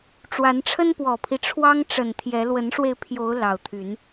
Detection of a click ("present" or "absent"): absent